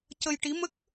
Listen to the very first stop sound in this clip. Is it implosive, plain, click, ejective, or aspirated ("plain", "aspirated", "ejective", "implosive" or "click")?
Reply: plain